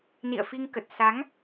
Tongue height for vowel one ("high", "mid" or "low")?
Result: high